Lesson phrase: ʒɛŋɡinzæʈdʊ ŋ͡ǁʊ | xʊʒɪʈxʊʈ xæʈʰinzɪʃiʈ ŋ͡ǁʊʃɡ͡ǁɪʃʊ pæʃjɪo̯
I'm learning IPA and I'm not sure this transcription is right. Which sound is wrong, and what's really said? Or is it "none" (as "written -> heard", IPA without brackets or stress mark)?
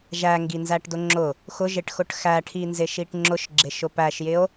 ɛ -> æ